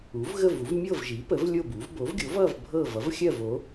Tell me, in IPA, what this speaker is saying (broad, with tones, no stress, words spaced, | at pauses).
u˩˥vɣə˥˨vu˩˥v mʲɤ˥˨vʒi˩˥ pə˩˥v lʲo˥˨bu˩˥v bo˩˥vɡʲo˩˥vʌ˥˨v bʱɤ˥˨ vʌ˩˥vxʲɜ˥˨vo˩˥